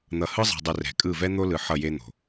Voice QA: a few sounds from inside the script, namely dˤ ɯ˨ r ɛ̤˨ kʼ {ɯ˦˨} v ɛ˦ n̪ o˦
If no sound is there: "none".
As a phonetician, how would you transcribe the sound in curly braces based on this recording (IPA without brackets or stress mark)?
ɯ˦˨